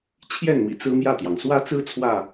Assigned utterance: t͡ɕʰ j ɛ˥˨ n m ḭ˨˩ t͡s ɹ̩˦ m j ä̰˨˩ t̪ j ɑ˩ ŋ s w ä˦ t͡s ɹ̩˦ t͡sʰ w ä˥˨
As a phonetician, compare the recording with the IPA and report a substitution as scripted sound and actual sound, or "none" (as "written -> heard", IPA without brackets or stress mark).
ä̰˨˩ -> ä˥˨